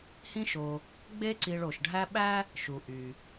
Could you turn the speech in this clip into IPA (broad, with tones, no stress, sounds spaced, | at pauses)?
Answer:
h ĩ˦ ʃ o˨ | ɡ͡b e˦ ǀ i˨ ɭ o˩ ʃ ɖʱ æ˦ ɓ æ˥ | ʃ u˩ ʔ y˩